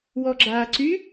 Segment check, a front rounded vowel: present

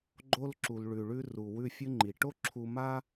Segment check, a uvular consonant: absent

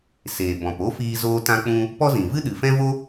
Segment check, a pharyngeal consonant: absent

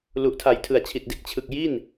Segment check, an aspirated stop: present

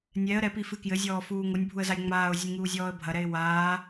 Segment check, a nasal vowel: absent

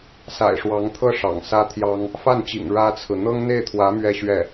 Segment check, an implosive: absent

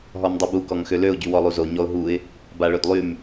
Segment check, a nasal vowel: absent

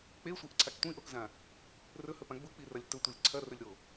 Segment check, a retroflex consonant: absent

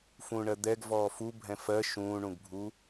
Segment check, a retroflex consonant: present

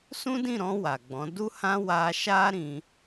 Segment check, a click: absent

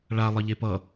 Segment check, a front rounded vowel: absent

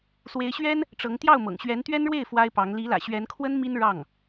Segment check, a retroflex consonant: present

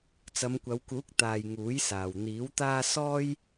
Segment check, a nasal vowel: absent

